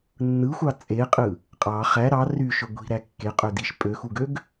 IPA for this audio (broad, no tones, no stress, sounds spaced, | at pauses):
nː ɯ xʷ ɑ t͡sʼ e qʼ ɯ | qʼ ɑ χ æ ɾ ɑ r y ʃ ø ɡʷ i̤ ɾ æ kː e qʼ ø d i ʃ pʼ ø x u ɡ ø ɡ